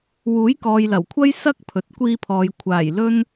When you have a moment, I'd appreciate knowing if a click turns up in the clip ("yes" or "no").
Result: no